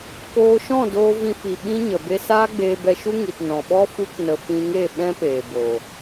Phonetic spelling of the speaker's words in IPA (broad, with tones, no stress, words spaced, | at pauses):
koː˧ʃɔ̃˦˨doː˧ vĩ˧fi˨ ɓĩ˦ɲə˨ be˧saː˦ɡ͡beː˧ bɛ˧ʃu˦ ŋi˨tnɔ̃˨ ɓɔ˦ fu˦knə˧ fĩ˧ŋe˦˨ ɓɛ̃˦peː˨ bo˨